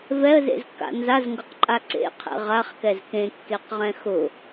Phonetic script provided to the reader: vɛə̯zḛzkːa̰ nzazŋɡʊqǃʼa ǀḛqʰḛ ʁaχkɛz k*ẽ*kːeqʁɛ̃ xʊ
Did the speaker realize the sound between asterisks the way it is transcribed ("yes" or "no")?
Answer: yes